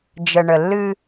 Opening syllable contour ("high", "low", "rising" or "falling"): low